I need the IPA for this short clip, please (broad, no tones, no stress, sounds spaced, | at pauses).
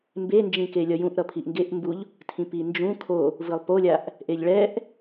m b e n d͡ʒ ĩ k e lʲ ʌ j ũ ʔ ɾ ʌ pʰ i ʔ ŋ ɡ e ʔ m b u ʎ | tʰ ĩ p i n d͡ʒ ũ kʰ o | v ɯ lˠ p o lʲ a ʔ | ʔ e ʎ ɭ ɛ ʔ